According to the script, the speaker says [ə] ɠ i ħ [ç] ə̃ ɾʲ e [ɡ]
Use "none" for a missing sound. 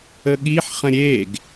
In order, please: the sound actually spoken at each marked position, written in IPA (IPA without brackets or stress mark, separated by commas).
ə, χ, ɡ